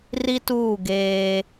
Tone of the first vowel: high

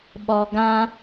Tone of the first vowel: low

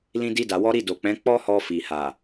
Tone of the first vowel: high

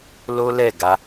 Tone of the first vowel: high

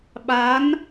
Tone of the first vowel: rising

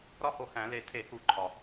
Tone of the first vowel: high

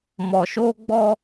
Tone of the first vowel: low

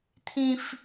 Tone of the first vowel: high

